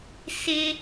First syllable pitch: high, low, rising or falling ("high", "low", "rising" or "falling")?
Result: high